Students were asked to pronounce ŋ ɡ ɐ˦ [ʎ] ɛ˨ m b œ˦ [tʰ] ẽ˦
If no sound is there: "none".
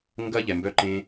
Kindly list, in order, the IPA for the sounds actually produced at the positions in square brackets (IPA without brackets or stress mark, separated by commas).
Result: ʎ, ǃ